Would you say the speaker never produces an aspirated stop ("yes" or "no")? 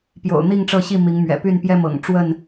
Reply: yes